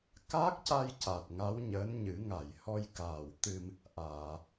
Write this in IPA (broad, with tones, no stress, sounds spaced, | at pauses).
k a˦˥ k̚ c a˧ j c a˨˩ t̚ ŋ a˧˥ w ɲ əː˧˥ n ɲ ɨ˨˩˦ ŋ a˨˩˨ j h ɔ˧ j k aː˨˩ w t̪ ɨ˧ m | ʔ aː˨˩˨